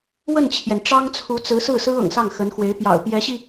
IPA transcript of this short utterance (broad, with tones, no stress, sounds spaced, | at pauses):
w ə˥˩ n t͡ɕʰ j ɛ˩ n ʈ͡ʂ ɑ˥ ŋ t͡sʰ u˧˥ t͡s ɹ̩˧˥ s ɹ̩˥˩ s ɹ̩˥ ɤ̰˨˩ ŋ s ɑ˥˩ ŋ x ə˧˥ n x w e˧˥ ɪ̯ p j ɑ̰˨˩ ʊ̯ p j ɛ˧˥ ɕ i˧